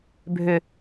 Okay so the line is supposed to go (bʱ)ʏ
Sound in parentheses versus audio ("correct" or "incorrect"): correct